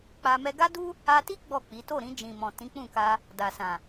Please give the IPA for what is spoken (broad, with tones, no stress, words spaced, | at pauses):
k͡pa˧ mɛ˧ɡa˦du˦ | a˧ti˦ ɡ͡bɔ˦˨k͡pi˨˦ to˦˨ɾĩ˧d͡ʒĩ˨mɔ̃˨ tĩ˨˦k͡pũ˦˨ka˧ | da˨sã˨